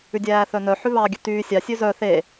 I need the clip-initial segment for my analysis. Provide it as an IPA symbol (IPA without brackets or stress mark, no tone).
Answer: ʉ